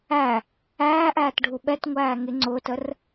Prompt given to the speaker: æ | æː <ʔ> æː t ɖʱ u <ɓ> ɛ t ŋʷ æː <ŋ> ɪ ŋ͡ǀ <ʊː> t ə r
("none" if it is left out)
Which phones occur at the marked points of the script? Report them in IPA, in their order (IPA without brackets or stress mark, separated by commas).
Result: ʔ, ɓ, ŋ, ʊː